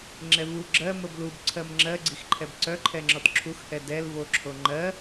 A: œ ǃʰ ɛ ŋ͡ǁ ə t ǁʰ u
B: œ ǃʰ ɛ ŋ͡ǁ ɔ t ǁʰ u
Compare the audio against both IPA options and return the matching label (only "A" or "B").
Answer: B